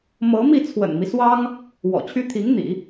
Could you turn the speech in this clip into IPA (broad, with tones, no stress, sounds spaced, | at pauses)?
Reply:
m ɤ˧˥ m i˥˩ t͡sʰ w ə̰˨˩ n m i˦ s w ɑ˥ ŋ | w ɔ̰˨˩ t͡ɕʰ y˥ t̪ʰ i˧˥ ŋ n̪ ḭ˨˩˦